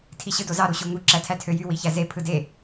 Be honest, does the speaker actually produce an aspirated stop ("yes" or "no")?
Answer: yes